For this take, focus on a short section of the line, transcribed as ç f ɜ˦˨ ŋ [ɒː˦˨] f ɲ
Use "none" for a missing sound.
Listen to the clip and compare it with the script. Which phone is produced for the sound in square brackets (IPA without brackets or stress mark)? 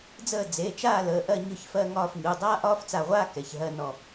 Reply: ɒː˦˨